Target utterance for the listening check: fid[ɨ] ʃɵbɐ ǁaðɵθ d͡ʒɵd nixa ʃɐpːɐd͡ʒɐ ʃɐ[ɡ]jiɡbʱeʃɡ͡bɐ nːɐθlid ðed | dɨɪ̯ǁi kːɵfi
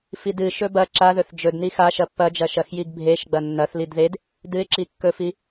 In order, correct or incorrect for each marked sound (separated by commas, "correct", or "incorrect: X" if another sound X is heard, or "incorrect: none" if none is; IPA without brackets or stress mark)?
correct, incorrect: x